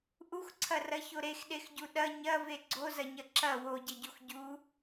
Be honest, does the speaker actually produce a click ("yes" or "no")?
yes